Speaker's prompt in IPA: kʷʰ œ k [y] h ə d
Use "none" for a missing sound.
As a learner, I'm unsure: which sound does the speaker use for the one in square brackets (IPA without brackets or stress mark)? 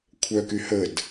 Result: y